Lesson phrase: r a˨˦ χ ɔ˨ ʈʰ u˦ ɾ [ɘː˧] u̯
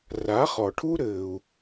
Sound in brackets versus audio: correct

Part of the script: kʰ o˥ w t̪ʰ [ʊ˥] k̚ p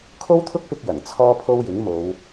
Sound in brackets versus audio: correct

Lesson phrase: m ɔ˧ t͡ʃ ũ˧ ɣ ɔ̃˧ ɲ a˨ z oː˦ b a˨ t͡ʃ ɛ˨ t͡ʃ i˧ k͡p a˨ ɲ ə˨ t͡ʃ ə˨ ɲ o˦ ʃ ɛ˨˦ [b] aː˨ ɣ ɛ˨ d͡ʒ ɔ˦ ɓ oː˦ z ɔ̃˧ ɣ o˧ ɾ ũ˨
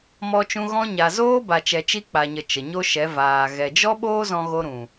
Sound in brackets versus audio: incorrect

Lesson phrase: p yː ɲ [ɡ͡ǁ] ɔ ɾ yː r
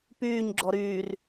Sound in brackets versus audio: correct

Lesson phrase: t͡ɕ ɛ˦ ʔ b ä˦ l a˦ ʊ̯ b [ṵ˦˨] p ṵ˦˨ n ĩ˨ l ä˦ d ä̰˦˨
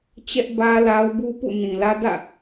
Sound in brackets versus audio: incorrect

